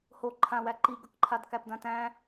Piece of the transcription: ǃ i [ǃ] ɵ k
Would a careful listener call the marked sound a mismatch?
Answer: yes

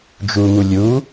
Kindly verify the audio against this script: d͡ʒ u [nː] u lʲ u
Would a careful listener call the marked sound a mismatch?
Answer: yes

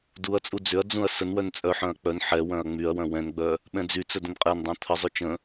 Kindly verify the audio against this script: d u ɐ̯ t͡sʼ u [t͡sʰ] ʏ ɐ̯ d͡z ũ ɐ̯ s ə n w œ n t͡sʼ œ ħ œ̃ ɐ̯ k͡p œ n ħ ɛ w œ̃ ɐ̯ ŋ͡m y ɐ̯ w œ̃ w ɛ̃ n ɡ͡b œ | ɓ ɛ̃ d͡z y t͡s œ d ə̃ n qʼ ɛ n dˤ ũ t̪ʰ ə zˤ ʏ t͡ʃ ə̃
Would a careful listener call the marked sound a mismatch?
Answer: yes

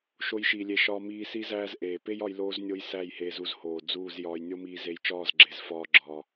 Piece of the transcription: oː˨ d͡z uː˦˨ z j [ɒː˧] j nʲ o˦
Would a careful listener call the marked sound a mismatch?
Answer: no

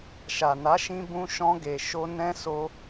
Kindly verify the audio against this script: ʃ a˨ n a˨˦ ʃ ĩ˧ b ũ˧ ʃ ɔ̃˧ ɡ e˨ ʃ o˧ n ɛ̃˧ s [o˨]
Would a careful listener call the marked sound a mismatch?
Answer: yes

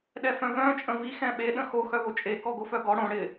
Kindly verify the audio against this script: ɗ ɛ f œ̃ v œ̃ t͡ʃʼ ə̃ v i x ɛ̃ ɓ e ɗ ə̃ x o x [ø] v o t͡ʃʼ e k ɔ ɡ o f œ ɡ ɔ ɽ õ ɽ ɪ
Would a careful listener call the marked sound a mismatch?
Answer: yes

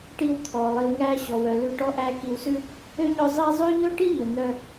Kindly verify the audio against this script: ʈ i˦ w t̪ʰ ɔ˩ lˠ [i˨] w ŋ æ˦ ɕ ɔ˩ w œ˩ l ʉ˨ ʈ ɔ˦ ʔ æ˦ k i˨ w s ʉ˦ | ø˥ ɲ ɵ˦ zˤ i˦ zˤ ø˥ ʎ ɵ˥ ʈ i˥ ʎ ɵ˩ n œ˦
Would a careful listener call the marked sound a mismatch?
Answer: no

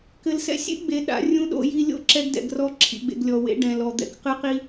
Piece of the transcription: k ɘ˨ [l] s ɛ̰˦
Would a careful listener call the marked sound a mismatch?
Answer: no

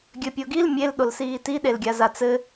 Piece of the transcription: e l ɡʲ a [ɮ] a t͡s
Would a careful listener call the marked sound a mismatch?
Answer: yes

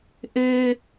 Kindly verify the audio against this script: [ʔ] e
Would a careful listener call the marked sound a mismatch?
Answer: no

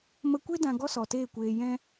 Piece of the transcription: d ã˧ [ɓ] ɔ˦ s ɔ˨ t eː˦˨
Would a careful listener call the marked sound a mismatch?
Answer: yes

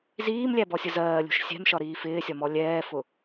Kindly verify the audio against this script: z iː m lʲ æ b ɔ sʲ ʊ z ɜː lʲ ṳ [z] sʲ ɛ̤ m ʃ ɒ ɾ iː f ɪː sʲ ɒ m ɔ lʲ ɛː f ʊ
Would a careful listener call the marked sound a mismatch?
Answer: yes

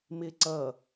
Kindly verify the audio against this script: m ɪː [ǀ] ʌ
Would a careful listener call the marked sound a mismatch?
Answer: no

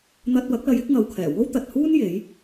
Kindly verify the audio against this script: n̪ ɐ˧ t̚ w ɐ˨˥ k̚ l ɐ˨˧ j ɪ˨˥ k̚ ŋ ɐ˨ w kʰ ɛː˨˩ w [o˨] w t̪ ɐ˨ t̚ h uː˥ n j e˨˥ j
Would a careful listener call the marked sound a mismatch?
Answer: yes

